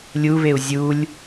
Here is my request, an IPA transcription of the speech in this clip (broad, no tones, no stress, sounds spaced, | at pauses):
lʲ u β e u̯ zʲ u lʲ